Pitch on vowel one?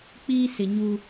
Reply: high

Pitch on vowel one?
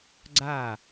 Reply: falling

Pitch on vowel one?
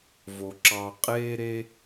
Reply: low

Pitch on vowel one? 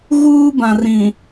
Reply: high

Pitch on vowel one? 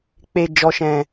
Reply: low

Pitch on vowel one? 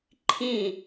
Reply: falling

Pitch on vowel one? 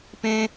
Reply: high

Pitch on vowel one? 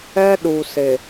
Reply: high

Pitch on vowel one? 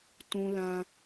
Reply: high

